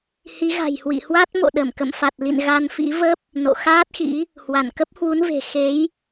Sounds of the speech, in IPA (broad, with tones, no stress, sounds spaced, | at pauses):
h i˨˦ ɣ a̤˨˩ j h w ḭ˧˨ h w a˦˥ t̚ m o̰˧˨ ɗ ə˧˩ m k ə̰˧˨ m f a˨˩ t̚ l ḭ˧˨ n ɣ a˧ n f ḭ˧˥ v ə˦˥ p̚ | n o̰˧˨ x aː˦˥ t̚ x ḭ˧˥ | h w a˧˩ n k ə˦˥ p̚ h w u˨˦ n v e̤˨˩ x e˨˦ j